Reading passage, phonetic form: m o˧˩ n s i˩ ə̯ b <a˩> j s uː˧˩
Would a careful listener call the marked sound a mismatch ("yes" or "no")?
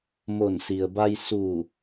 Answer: yes